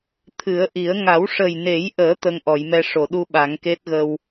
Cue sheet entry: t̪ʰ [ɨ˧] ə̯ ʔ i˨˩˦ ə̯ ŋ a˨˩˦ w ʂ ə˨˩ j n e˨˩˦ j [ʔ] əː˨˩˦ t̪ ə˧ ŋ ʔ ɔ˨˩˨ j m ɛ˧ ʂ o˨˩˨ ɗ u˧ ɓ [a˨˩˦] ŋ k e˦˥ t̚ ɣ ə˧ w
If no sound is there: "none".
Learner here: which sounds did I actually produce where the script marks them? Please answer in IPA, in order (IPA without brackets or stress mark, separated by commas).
ɨ˨˩˦, ʔ, a˨˩˦